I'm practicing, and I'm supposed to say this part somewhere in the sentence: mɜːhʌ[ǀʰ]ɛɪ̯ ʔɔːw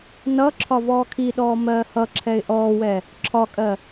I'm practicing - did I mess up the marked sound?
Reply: yes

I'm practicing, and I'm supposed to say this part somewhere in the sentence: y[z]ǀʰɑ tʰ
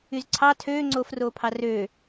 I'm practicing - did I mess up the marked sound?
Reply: no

